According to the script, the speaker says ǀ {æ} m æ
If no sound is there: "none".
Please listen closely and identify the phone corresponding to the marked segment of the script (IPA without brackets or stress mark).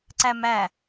æ